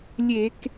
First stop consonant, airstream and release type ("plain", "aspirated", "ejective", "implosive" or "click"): plain